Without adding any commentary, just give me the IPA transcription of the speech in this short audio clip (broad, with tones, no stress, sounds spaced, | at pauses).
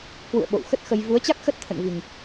k w ṵ˧˨ ə̯ ɓ o̰˧˨ w x ə˦˥ t̚ x ə˧ j v u˨˦ ə̯ t͡ɕ a˦˥ k̚ x ə˦˥ t̚ t̪ʰ ə̰˧˨ n v i˨˩ ŋ